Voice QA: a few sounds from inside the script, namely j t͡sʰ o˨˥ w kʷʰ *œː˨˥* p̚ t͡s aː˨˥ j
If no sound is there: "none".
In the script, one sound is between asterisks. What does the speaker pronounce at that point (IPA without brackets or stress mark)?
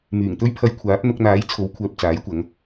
œː˨